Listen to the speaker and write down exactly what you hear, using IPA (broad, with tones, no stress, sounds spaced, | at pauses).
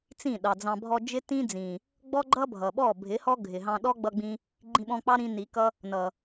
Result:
t͡s ĩ˦˨ ɗ ɑ˨ d͡z ɑ̃˧ bʱ ɔ˧ d͡ʒ ɪ˦ t ĩ˦ d͡z ĩ˨ | ɡ͡b ɔ˦ ɡ͡ǃ ʌ˦ bʱ ʌ˨ ɓ ɔ˦˨ bʱ ɪ˨˦ h ɔ˦ ɡʱ ɪ˨ ɦ ɑ̃˧ ɗ ɔ˦ ɡ͡b ʌ˦ ɡ͡b ĩ˦ | ɡ͡ǃ ĩ˧ ɓ ɔ̃˧ k͡p ɑ˦ ɾ ĩ˧ n i˨˦ k ʌ˦ | n ʌ˨